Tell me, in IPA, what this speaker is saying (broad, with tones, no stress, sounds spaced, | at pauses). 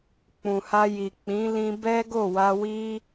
k͡p ũ˨ h a˧ j i˨ k͡p ĩ˨˦ l ĩ˧ b ɛ˦ ɡ o˦˨ w a˧ w i˦